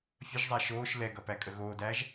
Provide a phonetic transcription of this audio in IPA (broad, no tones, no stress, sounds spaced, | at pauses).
fʲ ə ʒ zˤ æ ʃ oː ʃ l ɛ ɡ ʌ p æ kʼ ə ɣ oː d æː ʒ